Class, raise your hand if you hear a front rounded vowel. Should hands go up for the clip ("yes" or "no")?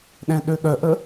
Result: yes